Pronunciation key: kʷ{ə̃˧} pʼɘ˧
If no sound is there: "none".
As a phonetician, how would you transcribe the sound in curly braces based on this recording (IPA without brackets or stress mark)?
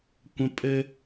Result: ə̃˧